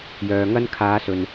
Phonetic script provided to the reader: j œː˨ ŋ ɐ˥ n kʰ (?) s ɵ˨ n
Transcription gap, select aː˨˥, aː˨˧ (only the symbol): aː˨˧